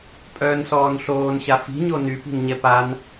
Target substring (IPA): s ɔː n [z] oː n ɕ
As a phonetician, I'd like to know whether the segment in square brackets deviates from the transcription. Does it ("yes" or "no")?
yes